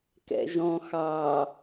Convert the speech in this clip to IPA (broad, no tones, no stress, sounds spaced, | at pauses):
k ɛ̰ ʒ ɔ̃ x ɑ